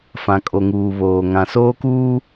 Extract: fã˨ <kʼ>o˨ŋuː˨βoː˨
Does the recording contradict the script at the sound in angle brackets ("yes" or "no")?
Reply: no